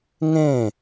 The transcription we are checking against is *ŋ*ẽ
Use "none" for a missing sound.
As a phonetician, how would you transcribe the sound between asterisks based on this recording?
ŋ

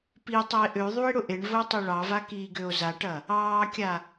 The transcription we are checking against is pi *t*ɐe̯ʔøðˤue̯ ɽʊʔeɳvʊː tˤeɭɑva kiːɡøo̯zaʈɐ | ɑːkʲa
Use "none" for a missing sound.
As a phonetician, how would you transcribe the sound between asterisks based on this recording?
tˤ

